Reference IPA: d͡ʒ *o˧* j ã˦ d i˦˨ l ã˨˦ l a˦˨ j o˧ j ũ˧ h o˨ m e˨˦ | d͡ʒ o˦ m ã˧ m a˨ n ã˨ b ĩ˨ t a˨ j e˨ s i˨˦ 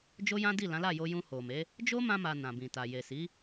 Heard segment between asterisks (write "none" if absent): o˦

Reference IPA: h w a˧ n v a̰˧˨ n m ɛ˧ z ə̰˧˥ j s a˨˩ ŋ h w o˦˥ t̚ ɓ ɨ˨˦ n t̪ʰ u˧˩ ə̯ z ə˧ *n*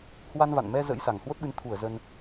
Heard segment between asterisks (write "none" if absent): n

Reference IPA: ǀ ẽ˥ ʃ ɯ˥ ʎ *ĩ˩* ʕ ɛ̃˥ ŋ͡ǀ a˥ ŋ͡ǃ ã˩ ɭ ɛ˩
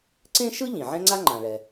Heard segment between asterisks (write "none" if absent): ĩ˩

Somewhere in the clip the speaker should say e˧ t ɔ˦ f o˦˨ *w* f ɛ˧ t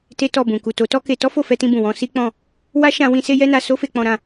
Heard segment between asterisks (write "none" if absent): none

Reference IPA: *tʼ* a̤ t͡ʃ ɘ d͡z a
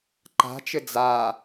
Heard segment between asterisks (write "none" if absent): ǃ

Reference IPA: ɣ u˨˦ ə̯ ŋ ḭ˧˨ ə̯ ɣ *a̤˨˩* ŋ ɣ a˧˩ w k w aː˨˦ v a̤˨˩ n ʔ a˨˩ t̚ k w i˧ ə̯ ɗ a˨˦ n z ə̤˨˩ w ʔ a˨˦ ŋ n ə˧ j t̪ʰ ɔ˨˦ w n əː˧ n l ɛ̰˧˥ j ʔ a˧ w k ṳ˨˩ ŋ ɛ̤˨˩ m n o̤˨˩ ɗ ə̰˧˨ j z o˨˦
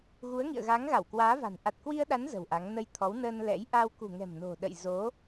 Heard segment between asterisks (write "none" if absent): a˨˦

